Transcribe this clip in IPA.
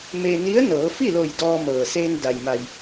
m e˧ n i˧˥ ə̯ n ɤː˩˧ f i˥˨ l o˧˩ j d ɔː˧ m ɤː˩ s eː˧ n d a˩ j m a˩ j

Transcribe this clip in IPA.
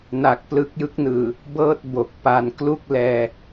n a˨˩ k̚ p l ɯ˦˥ k̚ j ɯ˦˥ k̚ n ɯː˨˩ | b ɤː˥˩ t̚ b o˨˩ k̚ p a˧ n k l u˥˩ k̚ l ɛː˧

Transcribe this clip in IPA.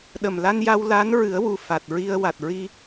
ɗ ə˨˩ m l a˧ n j a˧ w l a˧˥ n ɹ ɨ˨˩˦ ə̯ w u˨˩ f a˨˩ t̚ ɹ i˧ ə̯ w a˨˩ t̚ ɹ i˧

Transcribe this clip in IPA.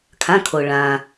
kʰ ã˩˧˩ kʰ o˩ ɭ ãː˩

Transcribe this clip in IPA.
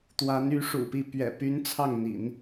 t̪ w a˧˥ n y˧˥ ʂ ṵ˨˩ p i˥˩ p ɥ ɛ̰˨˩ p y˧˥ n t͡sʰ ɑ˥˩ ŋ n̪ ḭ˨˩˦ n

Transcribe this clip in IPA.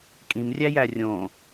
kʼ ĩ m rʲ æ j æ rʲ õ

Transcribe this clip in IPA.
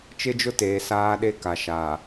t͡ʃ ɪ˦ d͡ʒ ʊ˦ t eː˨ s aː˦ ɗ e˦ k a˨ ʃ aː˨

